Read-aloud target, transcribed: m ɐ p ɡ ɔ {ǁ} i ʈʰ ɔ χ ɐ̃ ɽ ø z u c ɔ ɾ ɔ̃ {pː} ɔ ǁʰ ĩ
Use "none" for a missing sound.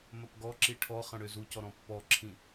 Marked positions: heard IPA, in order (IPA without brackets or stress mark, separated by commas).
ǁ, pː